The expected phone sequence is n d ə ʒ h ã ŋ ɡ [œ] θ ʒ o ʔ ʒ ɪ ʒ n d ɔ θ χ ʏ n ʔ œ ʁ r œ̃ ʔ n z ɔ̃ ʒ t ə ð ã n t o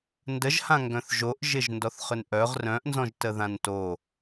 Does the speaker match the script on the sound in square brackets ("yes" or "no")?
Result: no